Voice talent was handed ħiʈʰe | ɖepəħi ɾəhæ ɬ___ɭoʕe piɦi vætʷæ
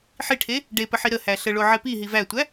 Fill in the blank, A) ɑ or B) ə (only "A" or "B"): B